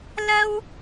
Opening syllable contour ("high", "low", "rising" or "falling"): high